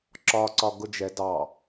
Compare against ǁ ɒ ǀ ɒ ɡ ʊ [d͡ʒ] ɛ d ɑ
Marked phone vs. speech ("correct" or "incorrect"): correct